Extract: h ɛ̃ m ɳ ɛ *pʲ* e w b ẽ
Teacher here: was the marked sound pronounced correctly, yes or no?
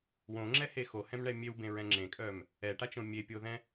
no